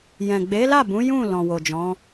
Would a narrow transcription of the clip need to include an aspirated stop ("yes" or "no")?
no